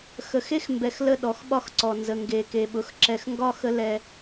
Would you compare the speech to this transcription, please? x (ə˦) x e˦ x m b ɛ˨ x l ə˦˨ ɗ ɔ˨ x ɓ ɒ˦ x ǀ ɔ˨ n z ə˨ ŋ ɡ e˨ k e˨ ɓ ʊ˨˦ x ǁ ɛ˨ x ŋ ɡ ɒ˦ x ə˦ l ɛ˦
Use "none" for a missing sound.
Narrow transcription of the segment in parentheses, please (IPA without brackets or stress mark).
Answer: ə˨